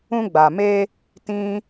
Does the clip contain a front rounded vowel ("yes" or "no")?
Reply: no